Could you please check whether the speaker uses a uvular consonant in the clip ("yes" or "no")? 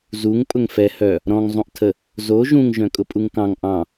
no